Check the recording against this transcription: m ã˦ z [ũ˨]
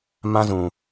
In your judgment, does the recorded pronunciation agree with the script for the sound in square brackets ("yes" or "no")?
yes